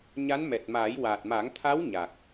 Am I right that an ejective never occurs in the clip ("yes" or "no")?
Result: yes